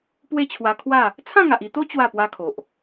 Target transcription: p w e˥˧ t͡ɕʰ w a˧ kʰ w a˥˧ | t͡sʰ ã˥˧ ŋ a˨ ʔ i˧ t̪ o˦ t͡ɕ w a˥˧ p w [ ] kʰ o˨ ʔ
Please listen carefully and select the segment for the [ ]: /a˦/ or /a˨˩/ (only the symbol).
a˦